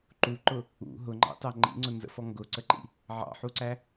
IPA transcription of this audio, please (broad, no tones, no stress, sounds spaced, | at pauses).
ǃ u ǃ ʊ | ṵ ɦ ʊ ŋ͡ǃ ɑ̰ t ɑ ŋ͡ǃ ḭ ŋ͡ǀ ʊ n z ə̰ f ɔ ŋ ɡ ʊ ǀ ə ǃ ḭ | ʕ ɑ̰ ħ u ǀ æ